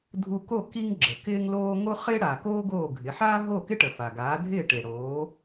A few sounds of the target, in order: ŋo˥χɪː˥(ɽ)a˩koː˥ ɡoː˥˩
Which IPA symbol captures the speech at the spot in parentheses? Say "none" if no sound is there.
ɽ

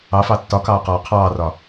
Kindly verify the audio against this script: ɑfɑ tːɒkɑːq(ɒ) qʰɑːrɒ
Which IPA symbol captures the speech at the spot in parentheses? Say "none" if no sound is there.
ɒː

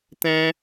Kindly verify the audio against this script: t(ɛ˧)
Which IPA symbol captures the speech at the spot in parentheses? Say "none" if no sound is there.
ɛ̃˧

